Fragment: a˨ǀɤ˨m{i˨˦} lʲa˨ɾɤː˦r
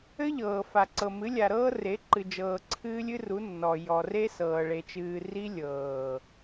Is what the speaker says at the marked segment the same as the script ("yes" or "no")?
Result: no